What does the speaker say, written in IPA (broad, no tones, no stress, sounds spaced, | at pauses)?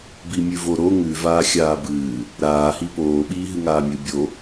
b i mʲ ʉ v o ɾ o ŋ ʉ v aː xʲ aː b ɨː | ɾ aː h i p oː ɓ iː ɦ ɨ ŋ aː mʲ ɨ bʲ o